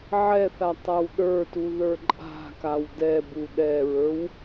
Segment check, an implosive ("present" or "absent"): present